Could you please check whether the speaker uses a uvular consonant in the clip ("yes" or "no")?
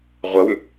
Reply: yes